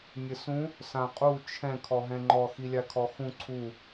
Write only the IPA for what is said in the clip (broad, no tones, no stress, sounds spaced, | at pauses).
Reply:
nʲ ə s ũ | s ã qʼ u t͡ʃʰ ɛ̃ kʰ ɔ ɦ ɛ̃ ŋ͡ǃ ɔ x i lʲ a kʰ ɔ x ũ ǀʰ u